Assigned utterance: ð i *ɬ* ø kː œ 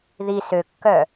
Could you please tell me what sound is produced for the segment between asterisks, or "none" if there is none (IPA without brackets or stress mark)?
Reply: s